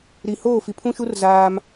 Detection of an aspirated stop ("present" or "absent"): present